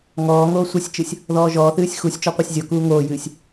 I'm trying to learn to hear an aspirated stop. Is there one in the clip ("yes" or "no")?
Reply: no